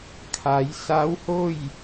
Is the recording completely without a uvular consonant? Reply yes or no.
yes